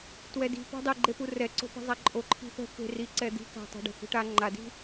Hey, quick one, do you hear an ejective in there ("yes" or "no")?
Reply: yes